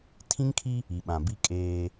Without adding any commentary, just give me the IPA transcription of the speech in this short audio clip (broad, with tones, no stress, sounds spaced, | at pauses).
tʰ ĩ˦ ŋ kʰ i˦ | i˨ ɓ ã˨ b i˦ kʼ eː˦